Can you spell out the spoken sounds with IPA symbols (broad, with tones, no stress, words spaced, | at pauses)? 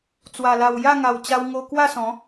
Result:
t͡swa˨˩la˨˩w ja˥˧ŋa˨˩w t͡ɕa˧wŋo˧ kwa˥˧sɔ̃˨˦